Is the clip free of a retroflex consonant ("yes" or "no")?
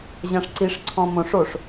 no